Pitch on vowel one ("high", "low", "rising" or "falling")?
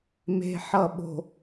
low